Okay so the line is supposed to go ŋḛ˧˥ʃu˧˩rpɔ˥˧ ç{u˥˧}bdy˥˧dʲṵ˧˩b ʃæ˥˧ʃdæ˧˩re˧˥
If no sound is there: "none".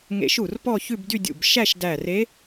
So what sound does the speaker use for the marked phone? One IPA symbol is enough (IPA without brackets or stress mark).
ʉ˥˧